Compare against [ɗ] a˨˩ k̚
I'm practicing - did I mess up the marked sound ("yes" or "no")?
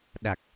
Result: no